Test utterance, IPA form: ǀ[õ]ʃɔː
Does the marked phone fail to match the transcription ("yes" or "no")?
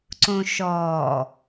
no